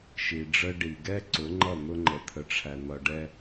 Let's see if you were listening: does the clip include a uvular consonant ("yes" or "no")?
no